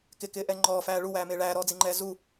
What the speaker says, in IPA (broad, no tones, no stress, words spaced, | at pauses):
kɪkɪːʔɛ ŋ͡ǃɔːfæː ɭuwæːmɪː ɭæːɾɔːd͡ziŋ͡ǃɛː zu